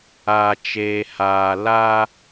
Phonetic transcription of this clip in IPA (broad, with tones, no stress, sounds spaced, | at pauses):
a˨ t͡ʃ eː˨ h aː˨ l a˦